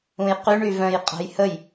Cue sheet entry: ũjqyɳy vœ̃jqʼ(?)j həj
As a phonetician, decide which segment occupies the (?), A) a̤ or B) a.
A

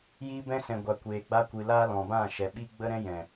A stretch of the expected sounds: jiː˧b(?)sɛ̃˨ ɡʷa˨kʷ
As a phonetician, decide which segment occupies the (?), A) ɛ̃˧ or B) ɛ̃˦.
A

